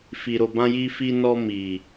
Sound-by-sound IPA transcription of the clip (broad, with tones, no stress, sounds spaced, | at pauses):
f i˨ ɾ o˨ b ã˧ j i˧ f i˧ n ɔ˧ m i˨